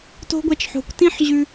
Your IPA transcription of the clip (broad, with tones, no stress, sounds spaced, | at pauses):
t o̤˦ ɡʷ ɛ˧ t͡ʃ ħ o̤˨ kʷ t ĩ˦ ħ ʑ ʉ˧